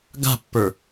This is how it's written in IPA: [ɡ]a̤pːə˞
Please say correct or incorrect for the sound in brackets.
correct